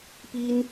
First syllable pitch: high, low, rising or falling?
high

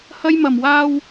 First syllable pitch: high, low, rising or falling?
high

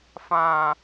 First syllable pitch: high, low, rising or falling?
high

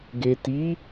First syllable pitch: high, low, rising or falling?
low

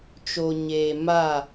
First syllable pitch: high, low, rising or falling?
low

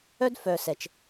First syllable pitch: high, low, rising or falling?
high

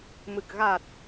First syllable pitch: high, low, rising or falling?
low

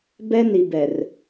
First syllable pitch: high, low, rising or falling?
high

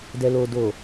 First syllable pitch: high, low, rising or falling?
low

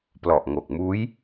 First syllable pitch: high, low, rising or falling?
low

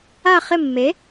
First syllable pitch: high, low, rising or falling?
falling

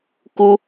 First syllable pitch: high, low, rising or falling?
high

